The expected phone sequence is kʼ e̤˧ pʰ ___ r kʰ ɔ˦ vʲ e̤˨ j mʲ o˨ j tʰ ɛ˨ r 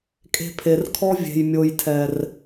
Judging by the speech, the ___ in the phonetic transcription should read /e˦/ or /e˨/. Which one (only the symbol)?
e˨